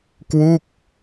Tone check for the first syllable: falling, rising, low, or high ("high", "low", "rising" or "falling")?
falling